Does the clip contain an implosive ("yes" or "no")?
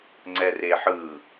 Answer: no